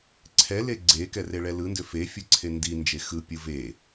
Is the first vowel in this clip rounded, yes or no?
no